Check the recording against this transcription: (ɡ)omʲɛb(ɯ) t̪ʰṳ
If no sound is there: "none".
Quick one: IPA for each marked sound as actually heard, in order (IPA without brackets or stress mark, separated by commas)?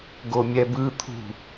ɡ, ɯ